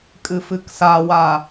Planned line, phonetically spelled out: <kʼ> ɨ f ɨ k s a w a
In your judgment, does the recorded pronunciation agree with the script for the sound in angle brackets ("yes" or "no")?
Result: yes